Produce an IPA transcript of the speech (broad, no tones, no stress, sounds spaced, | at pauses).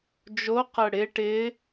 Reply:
d͡ʒ o q ə ɽ ɪ ʈ ɪ